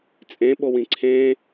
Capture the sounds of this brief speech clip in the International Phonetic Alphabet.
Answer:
t͡sʼ ẽ ɓ o w ĩ ǀʰ ẽ

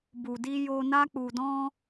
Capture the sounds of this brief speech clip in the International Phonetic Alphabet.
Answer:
b u˨ d i˧ j o˧ n a˦ k͡p u˧ d ɔ̃˦

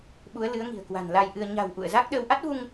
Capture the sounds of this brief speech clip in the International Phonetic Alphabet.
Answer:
ɓ u˨˦ ə̯ l ɨ˨˦ ə̯ ŋ i̤˨˩ ə̯ k w a̤˨˩ n l a˧ j ʔ ɨ˧ ə̯ ɲ a̤˨˩ w ʔ ṵ˧˨ ə̯ z a˦˥ k̚ ɗ əː˧ w ʔ a˦˥ t̚ v u˧ ŋ

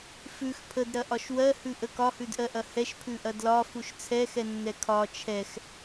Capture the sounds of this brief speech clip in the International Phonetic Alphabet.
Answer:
f ʉ x pʰ ə d ɾ ɐ ʔ ɒ ʃ w ɜ h ʉ ʔ ə k ɒ h ʉ d ʔ ɜ ʔ ɐ h ɛ ʃ pʰ ʉ ʔ ɐ d l ɒ f u ʃ t͡sʰ ɛ x ɛ nː ɛ kʰ ɒ t͡ʃʰ ɛ x

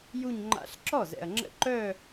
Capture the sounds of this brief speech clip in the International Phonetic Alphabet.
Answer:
j u˥˧ ɲ ŋ͡ǃ a̰˦˥ ɬ ǁ ɔ˥˩ z ɛ̰˨ ɐ̯ ŋ͡ǁ ə̰˦˥ ǃ œ˥˧

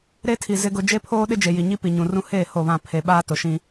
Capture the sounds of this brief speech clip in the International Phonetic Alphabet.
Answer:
ɾ e˦ tʰ i˨ z ɪ˦ ɡ ʊ˦ d͡ʒ e˦ pʰ oː˦ ɗ ɪ˦ d͡ʒ e˨ j i˨ ɲ i˦ p i˨ ɲ ũ˨ r ũ˦ h eː˦˨ h o˦˨ β ã˦˨ pʰ e˨ ɓ aː˦ t ʊ˨ ʃ ĩ˦

